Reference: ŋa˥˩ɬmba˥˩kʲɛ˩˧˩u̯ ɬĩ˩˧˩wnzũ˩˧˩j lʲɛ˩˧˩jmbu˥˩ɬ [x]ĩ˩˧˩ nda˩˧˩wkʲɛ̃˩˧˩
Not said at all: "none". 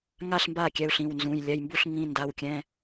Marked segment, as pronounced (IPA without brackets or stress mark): ŋ